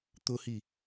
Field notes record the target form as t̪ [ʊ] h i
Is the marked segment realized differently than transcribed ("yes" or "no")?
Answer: no